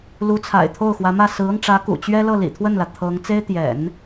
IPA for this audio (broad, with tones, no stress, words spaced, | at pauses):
lu˧˥t͡sʰa̰˨˩ɪ̯ t̪ʰo˥˩ʊ̯xwä˧˥mä˥˩ sɹ̩˧˥ɤ˧ŋʈ͡ʂä˧˥kṵ˨˩ t͡ɕɥɛ˥lɤ˥˩ lḭ˨˩t̪ʰwə˥˩nlä˩ t̪ʰɤ˧˥ŋ t͡se˥ɪ̯t̪jɛ̰˨˩˦n